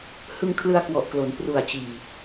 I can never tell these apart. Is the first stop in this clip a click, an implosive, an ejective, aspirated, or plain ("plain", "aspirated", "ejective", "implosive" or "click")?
aspirated